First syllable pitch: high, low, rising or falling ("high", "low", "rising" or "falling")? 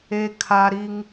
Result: high